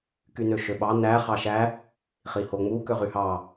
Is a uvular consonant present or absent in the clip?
present